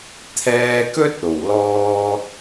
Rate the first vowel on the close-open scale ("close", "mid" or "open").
mid